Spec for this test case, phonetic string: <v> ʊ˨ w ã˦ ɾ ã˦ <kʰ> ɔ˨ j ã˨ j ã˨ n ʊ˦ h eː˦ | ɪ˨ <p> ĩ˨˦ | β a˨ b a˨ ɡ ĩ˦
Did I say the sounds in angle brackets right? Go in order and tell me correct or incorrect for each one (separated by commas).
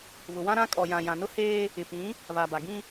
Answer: incorrect, incorrect, correct